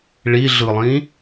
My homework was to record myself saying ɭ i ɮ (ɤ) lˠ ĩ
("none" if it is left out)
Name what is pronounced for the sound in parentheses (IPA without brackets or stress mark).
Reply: ɯ